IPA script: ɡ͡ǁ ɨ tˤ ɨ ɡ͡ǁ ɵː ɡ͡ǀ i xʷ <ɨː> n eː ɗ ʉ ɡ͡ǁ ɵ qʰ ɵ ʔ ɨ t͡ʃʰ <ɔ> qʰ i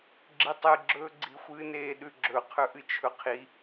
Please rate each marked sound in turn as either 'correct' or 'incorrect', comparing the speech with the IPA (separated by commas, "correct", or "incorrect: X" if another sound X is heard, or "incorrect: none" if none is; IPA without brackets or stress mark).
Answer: correct, incorrect: ɵ